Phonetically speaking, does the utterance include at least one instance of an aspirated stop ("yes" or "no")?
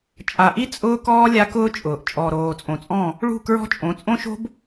no